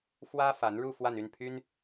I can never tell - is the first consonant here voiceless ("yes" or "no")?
yes